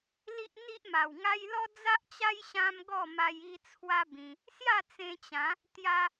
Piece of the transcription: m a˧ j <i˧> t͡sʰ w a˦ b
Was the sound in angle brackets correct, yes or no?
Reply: yes